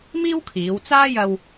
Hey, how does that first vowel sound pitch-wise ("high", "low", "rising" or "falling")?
high